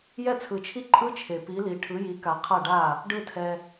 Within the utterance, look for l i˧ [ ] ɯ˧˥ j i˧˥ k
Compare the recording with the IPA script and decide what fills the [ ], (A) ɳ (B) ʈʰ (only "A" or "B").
B